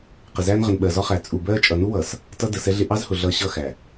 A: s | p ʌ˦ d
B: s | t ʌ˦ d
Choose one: B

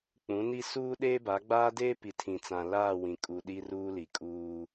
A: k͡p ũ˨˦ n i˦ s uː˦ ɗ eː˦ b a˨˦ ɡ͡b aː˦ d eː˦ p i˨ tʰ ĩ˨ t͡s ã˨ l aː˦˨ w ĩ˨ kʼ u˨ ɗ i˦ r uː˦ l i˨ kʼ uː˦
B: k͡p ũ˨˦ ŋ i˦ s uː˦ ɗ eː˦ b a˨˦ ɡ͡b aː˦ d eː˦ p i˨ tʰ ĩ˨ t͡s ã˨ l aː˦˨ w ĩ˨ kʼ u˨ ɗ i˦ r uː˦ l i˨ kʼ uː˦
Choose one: A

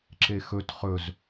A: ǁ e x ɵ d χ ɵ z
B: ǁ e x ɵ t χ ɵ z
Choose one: B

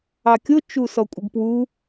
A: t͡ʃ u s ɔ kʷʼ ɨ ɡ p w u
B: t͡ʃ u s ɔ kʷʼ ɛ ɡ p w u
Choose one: A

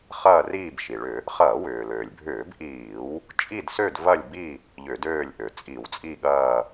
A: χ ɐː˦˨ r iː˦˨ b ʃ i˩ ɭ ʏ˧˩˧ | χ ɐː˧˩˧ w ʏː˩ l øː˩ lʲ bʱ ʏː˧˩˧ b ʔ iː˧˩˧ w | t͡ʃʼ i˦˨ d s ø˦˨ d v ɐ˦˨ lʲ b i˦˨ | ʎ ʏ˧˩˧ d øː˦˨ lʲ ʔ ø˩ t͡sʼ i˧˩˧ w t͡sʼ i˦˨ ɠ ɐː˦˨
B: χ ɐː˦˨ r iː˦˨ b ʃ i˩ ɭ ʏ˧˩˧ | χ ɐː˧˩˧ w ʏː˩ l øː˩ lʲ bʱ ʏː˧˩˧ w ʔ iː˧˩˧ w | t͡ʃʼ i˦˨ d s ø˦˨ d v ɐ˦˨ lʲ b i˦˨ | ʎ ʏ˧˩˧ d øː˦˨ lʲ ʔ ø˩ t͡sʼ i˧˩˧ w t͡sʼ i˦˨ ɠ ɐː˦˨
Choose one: A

